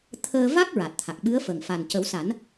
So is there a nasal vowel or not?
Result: no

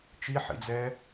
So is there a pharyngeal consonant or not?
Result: yes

